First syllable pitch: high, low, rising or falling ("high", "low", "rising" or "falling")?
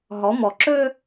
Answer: rising